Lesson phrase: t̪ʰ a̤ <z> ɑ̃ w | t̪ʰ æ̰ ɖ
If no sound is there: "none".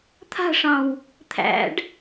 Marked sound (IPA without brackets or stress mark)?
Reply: ʂ